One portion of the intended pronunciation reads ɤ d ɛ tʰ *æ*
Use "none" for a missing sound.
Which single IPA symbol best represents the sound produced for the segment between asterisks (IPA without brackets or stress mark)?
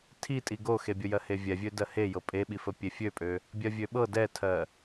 ɜ